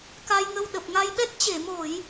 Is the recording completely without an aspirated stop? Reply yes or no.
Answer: yes